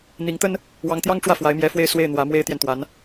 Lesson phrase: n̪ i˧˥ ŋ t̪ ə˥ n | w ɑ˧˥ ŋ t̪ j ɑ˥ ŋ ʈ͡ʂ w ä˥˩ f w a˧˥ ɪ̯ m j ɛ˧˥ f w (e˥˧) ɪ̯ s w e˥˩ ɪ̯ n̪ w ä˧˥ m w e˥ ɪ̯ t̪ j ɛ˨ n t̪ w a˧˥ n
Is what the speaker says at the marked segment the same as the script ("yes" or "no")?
yes